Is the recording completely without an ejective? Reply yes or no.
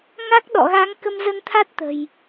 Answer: yes